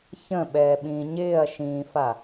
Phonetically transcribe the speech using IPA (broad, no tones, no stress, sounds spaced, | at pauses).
ç ə̃ ɓ ɛː ɓ ĩː ɲ ɪː ɐ̯ ʃ ĩː f a